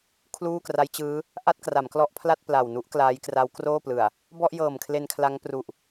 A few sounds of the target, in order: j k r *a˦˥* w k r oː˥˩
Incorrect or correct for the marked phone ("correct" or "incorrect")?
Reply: correct